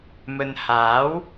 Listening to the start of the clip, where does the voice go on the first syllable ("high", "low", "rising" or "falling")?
low